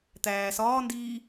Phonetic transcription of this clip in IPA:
t̪æː sɒː ndiː

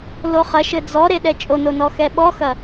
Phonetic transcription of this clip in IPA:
loχɐʃɘ d͡zɔ ɾeɗɛt͡ʃʼono nɔxɛɓɔxɐ

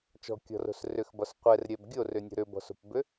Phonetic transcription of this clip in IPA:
t͡ʃɔ̤kʲɔ̤ro̤s rʏxbɒs qʷɛrɾʲɛb ɡʲorʏnʲo̤ ɾʏbɔ̤so̤pbʏ

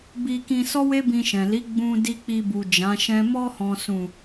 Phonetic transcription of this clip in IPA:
bi˧kĩ˧ sɔ˦we˦bĩ˧ʃɛ̃˨ li˨˦ ɡ͡bũ˧ di˧k͡pi˧bu˨ d͡ʒã˨˦ʃɛ̃˦ mɔ˧hɔ̃˨sũ˨

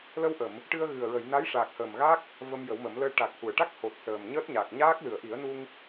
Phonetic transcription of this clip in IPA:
lə˧wʔə˨˩˨m | ʈɨ˧ə̯ɣɨ˨˩ə̯ɹə˨˩˨j na˧˥jʂaː˨˩k̚həː˨˩mɣa˦˥k̚ | və˧mjə˨˩˦wmə˨˩˦mləː˧ ʈa˨˩k̚hu˨˩˨ə̯ʈa˦˥k̚ho˨˩t̚ səː˨˩mɲəː˦˥t̚ɲaː˨˩k̚ ɲaː˦˥k̚ lɨ˨˩˨ə̯ʔi˨˩˦ə̯nu˧ŋ

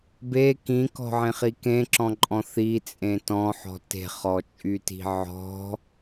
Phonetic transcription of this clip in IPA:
be kĩkɔ̤ʕẽχi kẽǁɔ̃ǃʼɔ̃ θit͡sʼẽ tɔ̃ħɔ̤ te̤χɔt͡ʃʼyti̤ ʕɔ̤

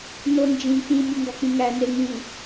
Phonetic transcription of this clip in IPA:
nond͡ʒĩ k͡pĩ mʲuŋɡɒk͡pĩŋæ neŋĩ

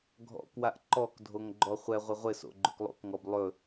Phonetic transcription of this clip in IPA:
ɡʱɔ̰kwaʔ ǃɔk dʱoŋɡ͡ǃɔχʷɛʁʷɪ ʁʷɪso̰ ɡ͡ǃɵklˠo̰kŋɔb lˠɵ

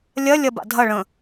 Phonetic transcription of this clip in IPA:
lʲɐ lʲɐba̰dʱɐ ɭə̃

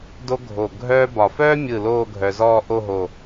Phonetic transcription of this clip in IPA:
do˥ɡʱo˧˩ ɡʱœː˥bɒ˧˩ fœː˥mʲɯ˧˩ loː˥˧ɡʱœ˧zɔː˥˧ ʔo˥˧ɦo˧˩

